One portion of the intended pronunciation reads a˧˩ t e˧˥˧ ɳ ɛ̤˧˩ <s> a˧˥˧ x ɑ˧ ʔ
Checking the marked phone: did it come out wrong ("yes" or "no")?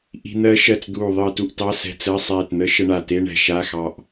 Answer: yes